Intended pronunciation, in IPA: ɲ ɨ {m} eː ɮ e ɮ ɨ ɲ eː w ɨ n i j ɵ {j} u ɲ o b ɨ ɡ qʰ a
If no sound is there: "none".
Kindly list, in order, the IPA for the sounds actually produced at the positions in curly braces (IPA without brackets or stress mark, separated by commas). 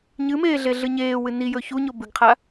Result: m, ç